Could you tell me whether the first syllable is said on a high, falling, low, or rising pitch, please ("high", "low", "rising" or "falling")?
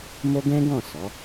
high